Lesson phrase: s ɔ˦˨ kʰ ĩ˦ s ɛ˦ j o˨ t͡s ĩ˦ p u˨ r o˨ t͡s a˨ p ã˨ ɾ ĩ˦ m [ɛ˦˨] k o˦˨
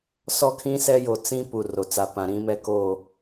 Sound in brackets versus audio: incorrect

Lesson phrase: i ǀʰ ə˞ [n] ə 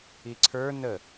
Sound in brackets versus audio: correct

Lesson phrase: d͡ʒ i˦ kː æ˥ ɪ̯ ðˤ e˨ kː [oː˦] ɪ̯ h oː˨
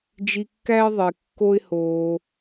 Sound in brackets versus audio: incorrect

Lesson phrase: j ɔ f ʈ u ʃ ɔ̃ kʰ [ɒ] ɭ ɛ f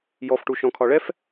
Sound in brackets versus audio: correct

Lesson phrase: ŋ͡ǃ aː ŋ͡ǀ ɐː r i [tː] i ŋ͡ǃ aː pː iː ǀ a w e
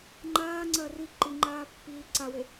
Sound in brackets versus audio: incorrect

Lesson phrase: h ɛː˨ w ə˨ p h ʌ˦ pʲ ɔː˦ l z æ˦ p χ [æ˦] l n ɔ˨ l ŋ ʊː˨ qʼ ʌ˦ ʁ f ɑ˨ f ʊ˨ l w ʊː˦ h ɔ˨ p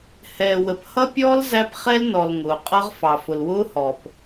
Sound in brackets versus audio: incorrect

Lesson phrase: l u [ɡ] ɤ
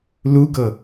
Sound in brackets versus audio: correct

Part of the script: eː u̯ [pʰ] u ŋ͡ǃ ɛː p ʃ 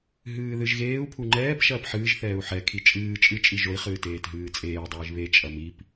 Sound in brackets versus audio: correct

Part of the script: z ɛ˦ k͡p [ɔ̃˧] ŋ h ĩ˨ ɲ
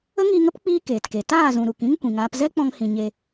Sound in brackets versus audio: correct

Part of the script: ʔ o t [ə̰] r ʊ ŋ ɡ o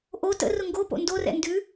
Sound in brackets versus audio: correct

